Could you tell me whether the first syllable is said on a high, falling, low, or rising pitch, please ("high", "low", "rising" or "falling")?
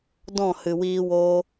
falling